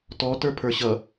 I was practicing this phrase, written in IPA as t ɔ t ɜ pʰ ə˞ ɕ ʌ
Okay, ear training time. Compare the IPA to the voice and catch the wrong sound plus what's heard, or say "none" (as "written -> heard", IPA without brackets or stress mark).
ɜ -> ə˞